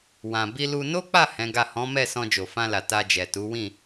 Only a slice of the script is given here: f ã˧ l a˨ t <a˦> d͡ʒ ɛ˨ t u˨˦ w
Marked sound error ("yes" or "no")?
yes